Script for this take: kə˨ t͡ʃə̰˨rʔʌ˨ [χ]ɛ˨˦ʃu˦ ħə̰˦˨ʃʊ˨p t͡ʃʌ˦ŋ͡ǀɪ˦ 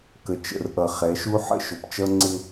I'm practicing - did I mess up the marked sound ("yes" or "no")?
no